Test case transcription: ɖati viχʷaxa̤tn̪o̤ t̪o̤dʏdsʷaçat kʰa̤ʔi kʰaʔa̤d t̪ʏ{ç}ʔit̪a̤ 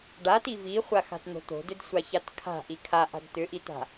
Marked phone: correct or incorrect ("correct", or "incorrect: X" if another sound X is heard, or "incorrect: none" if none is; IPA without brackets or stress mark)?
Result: incorrect: none